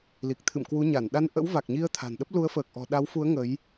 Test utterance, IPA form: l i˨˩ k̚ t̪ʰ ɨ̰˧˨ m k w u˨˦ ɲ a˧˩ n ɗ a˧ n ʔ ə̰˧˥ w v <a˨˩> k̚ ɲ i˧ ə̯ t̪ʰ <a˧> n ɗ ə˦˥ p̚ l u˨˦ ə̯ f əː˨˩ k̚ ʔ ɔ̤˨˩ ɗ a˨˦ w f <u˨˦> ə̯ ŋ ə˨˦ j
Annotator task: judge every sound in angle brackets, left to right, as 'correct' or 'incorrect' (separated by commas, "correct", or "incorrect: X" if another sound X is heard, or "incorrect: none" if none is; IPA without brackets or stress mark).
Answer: correct, incorrect: a̤˨˩, correct